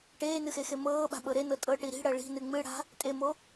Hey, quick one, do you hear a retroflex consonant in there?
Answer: yes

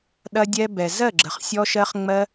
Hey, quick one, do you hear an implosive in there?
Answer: yes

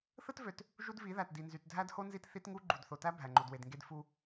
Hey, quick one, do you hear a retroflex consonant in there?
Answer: no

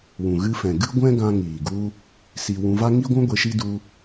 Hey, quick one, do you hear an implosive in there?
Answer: no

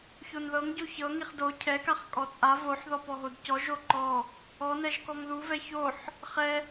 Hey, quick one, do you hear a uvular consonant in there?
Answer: yes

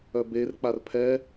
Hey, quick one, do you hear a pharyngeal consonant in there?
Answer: no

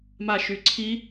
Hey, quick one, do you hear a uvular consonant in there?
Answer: no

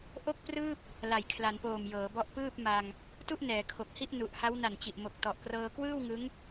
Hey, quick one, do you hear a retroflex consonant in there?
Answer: no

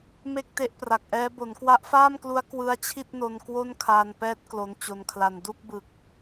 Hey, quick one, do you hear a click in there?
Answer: no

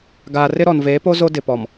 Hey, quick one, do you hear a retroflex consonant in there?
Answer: no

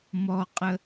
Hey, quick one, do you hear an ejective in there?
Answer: yes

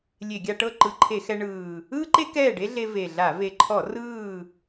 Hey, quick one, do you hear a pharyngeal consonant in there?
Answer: no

